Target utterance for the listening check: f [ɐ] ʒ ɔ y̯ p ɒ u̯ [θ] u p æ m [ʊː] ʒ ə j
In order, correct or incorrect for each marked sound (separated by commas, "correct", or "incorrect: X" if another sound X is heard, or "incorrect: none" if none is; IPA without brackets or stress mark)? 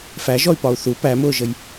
incorrect: æ, correct, correct